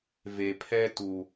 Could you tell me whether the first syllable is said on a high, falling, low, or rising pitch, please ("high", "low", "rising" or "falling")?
low